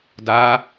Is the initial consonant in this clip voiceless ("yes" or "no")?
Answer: no